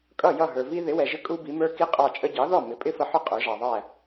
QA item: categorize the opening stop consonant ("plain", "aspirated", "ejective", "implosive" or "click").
ejective